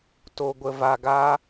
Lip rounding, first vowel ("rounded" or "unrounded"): rounded